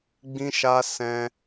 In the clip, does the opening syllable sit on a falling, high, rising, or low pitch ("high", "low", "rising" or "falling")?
high